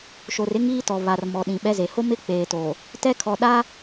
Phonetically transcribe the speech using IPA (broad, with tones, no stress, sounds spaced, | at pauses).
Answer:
ʃ o˨ r ɪ˦ ŋ iː˦ t ɔ˨ β a˨ r m ɔ˨ ɗ ĩ˨ ɓ ɛ˦ z e˨ h o˦ m ɪ˦ k͡p eː˨ t oː˨ | t ɛ˦ kʰ ɔ˨ ɗ a˦